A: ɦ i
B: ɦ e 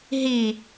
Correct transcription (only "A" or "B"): A